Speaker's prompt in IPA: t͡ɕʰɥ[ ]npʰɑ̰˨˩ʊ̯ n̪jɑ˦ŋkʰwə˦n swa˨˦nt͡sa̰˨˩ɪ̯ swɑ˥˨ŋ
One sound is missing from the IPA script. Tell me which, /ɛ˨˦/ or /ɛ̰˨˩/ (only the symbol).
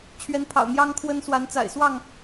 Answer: ɛ˨˦